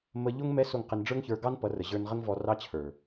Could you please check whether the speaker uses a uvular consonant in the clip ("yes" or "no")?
yes